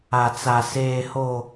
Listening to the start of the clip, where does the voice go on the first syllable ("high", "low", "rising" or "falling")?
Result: high